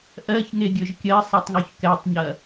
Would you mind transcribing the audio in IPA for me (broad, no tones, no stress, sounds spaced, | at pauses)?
ʔ ɜ ç ŋ e ɡʲ ɵ ʒ kʲ ɜ sˤ ɛ tˤ ŋ u ç k ɛ tˤ ɲ ɐ